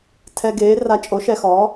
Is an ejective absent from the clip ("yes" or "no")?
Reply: no